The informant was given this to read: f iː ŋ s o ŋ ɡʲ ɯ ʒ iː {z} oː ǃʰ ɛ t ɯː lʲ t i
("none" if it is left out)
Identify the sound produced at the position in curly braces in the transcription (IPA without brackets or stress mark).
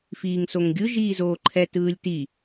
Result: z